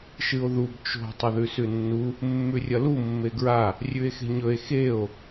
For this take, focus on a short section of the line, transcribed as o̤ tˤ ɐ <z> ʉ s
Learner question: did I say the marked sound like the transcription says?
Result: no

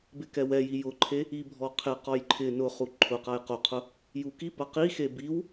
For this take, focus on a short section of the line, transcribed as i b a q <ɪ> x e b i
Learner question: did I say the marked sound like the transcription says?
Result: no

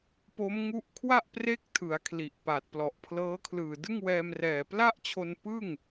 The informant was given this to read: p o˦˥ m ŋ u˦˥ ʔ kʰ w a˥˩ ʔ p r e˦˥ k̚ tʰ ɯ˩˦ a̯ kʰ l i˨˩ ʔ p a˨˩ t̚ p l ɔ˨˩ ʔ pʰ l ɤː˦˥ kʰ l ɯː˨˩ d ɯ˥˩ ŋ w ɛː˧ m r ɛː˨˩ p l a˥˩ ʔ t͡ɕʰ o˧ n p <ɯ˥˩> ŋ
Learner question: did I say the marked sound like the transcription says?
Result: yes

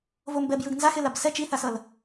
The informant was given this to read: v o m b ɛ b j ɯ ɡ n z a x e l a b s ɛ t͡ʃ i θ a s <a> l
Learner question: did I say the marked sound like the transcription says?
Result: no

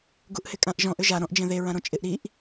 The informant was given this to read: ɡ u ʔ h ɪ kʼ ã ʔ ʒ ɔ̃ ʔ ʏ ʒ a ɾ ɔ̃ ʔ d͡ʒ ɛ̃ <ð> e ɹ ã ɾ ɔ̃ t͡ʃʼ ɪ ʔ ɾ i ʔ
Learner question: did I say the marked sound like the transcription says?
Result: yes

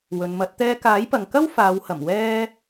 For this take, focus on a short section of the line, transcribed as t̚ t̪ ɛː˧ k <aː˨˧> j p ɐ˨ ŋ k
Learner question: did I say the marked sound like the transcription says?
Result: no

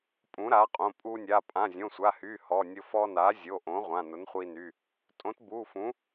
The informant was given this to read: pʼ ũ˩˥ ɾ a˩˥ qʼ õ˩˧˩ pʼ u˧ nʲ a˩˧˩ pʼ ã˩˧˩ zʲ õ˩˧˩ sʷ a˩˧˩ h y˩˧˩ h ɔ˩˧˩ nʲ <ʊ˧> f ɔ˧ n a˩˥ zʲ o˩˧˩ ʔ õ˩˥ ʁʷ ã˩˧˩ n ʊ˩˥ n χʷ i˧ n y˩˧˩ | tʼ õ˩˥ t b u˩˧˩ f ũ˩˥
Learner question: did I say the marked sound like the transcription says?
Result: yes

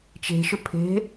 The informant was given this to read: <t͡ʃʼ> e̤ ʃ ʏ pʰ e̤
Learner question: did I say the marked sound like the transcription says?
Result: no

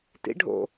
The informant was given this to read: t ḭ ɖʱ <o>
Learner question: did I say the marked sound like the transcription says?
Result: no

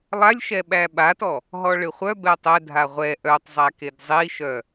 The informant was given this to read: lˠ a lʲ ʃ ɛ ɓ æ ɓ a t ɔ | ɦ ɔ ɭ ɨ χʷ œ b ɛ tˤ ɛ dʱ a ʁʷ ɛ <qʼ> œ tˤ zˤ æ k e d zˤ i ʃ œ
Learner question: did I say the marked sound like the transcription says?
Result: no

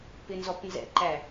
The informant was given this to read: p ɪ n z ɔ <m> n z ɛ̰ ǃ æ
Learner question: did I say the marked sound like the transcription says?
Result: no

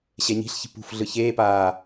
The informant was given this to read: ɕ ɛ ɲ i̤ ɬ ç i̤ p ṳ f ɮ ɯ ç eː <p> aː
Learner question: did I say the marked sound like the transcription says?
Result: yes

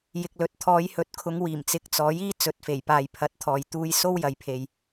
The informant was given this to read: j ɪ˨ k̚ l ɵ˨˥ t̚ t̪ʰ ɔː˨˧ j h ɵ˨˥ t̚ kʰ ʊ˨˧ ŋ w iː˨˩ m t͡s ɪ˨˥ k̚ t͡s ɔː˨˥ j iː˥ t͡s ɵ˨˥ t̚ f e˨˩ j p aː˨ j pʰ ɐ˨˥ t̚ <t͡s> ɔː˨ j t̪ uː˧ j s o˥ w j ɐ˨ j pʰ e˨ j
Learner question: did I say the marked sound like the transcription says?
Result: no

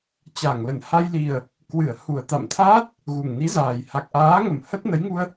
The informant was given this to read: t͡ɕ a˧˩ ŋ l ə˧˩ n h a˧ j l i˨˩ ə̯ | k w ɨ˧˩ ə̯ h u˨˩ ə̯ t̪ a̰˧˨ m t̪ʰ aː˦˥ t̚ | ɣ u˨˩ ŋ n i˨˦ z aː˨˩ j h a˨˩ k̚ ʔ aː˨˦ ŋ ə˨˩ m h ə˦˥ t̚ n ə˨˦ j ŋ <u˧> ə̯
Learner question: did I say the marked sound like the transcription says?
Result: yes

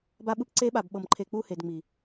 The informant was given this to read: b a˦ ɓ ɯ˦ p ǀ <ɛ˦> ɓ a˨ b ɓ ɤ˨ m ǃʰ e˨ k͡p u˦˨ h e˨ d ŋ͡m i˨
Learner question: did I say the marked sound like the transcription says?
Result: no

